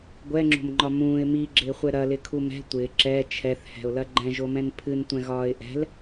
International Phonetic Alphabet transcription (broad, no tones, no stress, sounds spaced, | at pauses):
ɡʷ ɛ ŋ͡ǁ o̤ m ŋ͡ǃ ɒ m ũː ɪ̯ m i ɡ͡ǁ ɪː χʷ ɛ ɾ ɐ l ɪ kʰ u m ɛ̤ tʷ ɪː ǁ ɛ t͡ʃʰ ɛ θ h ɛ̤ ʊ̯ l ɐ ɡ͡ǃ ɛ̃ ʒ o m ɛ̃ n pʰ ɨ n tʷ ɛ̃ ɣ ɒː ɪ̯ ʔ ɛ̤ l